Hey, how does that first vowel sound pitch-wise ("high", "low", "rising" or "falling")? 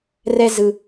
high